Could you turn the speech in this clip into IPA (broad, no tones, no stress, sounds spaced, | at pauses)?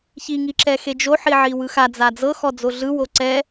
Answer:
ç i ŋ i ǁ ɛ x e d͡ʒ o ħ i ʕ i w ɯ x a d͡z a d͡z ɤ x ɔ d͡z o ɮ ɯ w o ǀ ɛ